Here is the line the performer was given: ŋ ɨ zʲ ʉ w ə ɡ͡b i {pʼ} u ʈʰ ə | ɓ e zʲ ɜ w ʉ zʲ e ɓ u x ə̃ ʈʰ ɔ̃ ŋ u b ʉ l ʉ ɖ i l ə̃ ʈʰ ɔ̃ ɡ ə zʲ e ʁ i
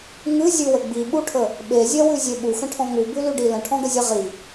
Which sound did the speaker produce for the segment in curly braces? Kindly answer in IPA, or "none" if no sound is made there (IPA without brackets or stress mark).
ɓ